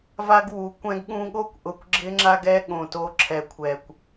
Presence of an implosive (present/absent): present